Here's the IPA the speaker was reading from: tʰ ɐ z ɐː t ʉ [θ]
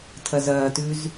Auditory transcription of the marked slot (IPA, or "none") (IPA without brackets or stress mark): z